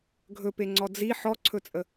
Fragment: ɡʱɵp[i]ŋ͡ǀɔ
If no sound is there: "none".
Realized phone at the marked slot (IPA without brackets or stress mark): e